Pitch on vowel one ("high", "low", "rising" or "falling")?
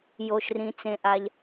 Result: low